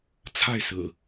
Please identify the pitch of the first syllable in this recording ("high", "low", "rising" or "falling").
falling